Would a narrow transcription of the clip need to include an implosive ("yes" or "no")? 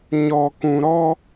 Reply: no